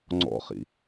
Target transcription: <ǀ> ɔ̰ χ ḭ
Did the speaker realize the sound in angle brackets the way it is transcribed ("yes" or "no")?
no